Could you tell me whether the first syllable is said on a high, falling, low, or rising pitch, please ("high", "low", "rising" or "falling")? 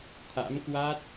rising